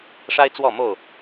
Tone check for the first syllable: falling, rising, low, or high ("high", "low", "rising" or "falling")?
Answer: high